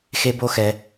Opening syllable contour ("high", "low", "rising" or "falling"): high